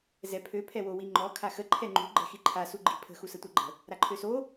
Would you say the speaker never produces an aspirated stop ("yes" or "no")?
no